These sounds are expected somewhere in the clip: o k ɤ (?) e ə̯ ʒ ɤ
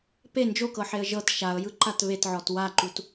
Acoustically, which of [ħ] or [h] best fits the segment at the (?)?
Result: ħ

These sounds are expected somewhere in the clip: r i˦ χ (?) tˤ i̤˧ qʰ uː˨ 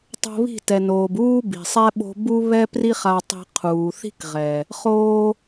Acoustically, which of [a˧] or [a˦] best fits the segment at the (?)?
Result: a˧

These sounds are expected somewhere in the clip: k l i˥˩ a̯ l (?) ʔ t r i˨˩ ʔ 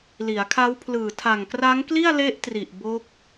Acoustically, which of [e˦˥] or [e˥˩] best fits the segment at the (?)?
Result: e˦˥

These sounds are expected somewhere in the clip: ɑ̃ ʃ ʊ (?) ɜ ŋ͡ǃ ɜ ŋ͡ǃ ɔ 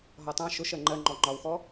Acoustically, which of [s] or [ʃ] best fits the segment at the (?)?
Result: ʃ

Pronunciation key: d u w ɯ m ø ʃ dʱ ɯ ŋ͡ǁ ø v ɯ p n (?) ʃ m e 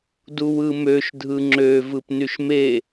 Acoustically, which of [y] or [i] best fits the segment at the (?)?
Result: y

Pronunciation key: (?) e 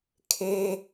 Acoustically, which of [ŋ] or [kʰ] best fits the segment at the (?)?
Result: kʰ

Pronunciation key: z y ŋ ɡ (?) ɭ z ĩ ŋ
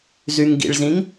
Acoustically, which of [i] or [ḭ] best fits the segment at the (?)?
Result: ḭ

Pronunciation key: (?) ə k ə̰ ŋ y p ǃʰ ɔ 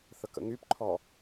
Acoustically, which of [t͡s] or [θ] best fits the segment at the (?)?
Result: θ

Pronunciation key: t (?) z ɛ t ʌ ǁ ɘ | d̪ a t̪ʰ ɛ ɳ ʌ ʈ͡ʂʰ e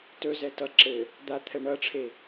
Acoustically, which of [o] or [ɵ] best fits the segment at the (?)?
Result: ɵ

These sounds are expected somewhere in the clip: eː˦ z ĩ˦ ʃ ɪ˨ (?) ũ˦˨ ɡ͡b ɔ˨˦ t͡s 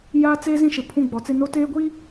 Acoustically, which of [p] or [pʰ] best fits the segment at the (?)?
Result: pʰ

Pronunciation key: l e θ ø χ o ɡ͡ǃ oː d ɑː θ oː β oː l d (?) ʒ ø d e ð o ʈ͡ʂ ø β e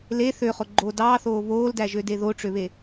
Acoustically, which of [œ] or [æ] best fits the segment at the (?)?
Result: æ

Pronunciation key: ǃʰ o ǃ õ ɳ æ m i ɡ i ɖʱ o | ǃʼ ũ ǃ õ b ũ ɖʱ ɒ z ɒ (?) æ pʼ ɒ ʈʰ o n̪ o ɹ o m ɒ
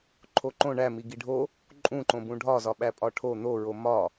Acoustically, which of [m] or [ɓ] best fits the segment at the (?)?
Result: ɓ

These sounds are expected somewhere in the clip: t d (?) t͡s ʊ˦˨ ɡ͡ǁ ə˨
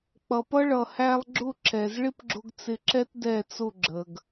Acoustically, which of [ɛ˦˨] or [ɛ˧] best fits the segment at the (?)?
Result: ɛ˦˨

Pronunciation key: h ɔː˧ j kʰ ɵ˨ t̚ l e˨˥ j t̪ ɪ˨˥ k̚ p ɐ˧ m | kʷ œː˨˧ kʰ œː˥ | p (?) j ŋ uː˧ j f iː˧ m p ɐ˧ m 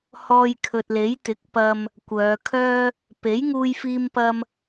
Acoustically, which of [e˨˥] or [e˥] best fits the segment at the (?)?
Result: e˨˥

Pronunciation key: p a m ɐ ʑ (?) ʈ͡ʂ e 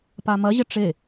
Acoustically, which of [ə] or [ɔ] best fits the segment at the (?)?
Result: ə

